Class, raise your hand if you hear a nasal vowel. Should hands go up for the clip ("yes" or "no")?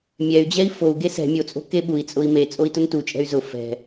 no